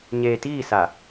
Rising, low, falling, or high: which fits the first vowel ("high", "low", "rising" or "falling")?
low